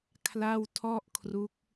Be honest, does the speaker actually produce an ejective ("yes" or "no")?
no